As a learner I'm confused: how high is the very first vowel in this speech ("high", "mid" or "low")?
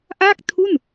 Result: low